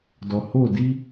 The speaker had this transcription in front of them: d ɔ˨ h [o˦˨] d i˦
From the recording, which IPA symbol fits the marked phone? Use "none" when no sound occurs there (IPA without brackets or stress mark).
o˦˨